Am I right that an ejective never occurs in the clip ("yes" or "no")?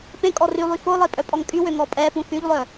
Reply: no